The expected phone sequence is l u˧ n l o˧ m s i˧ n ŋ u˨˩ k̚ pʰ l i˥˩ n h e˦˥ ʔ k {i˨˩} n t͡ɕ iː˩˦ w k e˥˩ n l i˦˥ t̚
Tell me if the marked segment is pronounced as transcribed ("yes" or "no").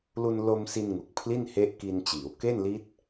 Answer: no